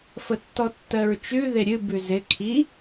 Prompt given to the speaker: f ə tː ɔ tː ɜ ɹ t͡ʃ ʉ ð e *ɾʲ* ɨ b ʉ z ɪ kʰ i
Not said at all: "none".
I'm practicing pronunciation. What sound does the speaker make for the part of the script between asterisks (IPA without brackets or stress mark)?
ɾʲ